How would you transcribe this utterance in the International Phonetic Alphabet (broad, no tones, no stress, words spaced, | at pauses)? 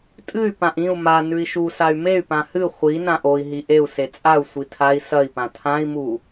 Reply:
tʼɨy̯ pãʔĩu̯ ma nʉi̯ʃusay̯ mey̯pã hɨ χʷi nãʔoi̯ ɦiʔeu̯ set͡sʼau̯ sʷitʰai̯ sɐi̯pã tʰãi̯mu